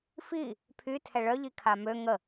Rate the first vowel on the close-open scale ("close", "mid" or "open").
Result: close